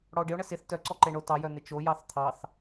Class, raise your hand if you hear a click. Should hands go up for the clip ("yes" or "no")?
yes